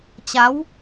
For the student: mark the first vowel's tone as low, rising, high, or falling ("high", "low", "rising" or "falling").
rising